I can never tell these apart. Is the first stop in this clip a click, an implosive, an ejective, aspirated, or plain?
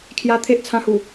aspirated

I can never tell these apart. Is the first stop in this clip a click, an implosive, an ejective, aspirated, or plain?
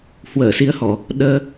implosive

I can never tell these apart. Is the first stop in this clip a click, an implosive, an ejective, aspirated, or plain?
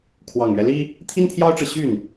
aspirated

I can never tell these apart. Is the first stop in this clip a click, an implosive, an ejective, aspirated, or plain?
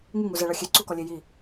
click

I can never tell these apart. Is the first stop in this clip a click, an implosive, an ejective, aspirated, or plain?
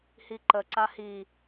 click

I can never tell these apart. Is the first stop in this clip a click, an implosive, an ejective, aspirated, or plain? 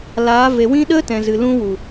implosive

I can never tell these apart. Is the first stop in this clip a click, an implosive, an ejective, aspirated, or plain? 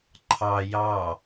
click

